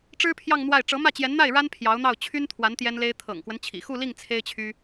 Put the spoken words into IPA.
ʈ͡ʂɻ̩˥pʰjɑ˥˧ŋn̪wa˥˩ɪ̯ ʈ͡ʂɤ˧˥mä˥˩t͡ɕjɛ˧˥nn̪a˥˩ɪ̯ ɻa˥npʰjɑ˧˥ʊ̯n̪ɑ˥˩ʊ̯ t͡ɕʰy˥nt̪ʰwa˧˥n t̪jɛ˥nle˥ɪ̯ t̪ʰɤ̰˨˩ŋkwə˦n t͡ɕʰḭ˨˩xu˥˧li˥˩ŋ t͡sʰe˥ɪ̯t͡ɕʰy˥

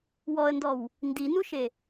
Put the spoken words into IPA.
wɔə̯ndɔw | ndinuʃe

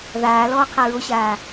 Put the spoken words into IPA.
ðaː lɔːqʰaɹoɕaː

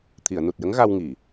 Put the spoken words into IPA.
t̪ʰi˨˩˨ə̯nu˨˩t̚jə˧˥ŋ ɣa˧w ŋi˨˩˨

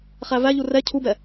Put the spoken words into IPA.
χævæʎu rɛ cʰubɛ

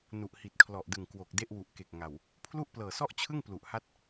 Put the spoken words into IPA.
nu˨˩ʔhi˨˩t̚kʰlɔ˨˩ʔdɯ˨˩ŋ kwo˨˩k̚ de˥˩ʔwu˨˩ʔke˨˩k̚ ŋa˨˩w | pʰlu˥˩ʔplɤː˨˩sɔ˥˩ʔt͡ɕʰɯ˥˩ŋ plu˨˩ʔha˦˥t̚

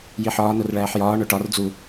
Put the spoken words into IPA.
jiħɒː norɭæːħjɒː ɳoʈɒr d͡zu

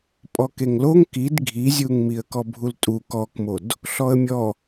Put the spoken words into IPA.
pʼɔkeŋloŋ kid ɡʱizʲuŋmiə̯ kɔbʱultʼu kɔkmod | ɬɔə̯mʲɔ

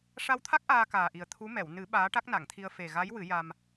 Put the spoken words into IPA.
ʂa˧wt̪ʰa˦˥k̚ ʔaː˧kaː˨˩ʔi˨˩ə̯ t̪ʰu˧˥mɛ˨˩˨w nɨ˨˩˦ ɓaː˧˥ʈa˦˥k̚na˨˩˨ŋt̪ʰi˧ə̯ fe˨˩ɣa˧˥j wɨ˨˩˦ja˧m

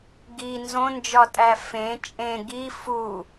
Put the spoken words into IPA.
ɡi nzõnd͡ʒɒtʼæ fẽ t͡ʃʼẽ ɡi fu

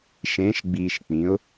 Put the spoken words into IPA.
ʃẽː˨˦ʃɡ͡biː˨ʃk͡pĩ˨˦ʊ̯

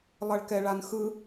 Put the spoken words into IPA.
lˠʌɭkɛɭanxɯ

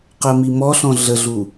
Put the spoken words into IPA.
qɜmimɔɬɔ̃ ɮəɮu

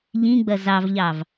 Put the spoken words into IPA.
ʎĩɡ͡bɐ zɑvʎɑv

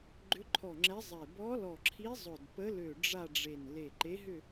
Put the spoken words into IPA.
ɡ͡ǃʏ˧˥ǃʰɔ˧˩ŋ͡ǁɛ˧˥ zˤe˧˩ bɔ˧˥lɔ˧˩ǁʰi˧˥ zˤʊ˧˩d pə˧˥lø˧˩ ɖ͡ʐa˥˧ɖ͡ʐe˧˩n le˧˩ǃe˧˥ɦʏ˥˧

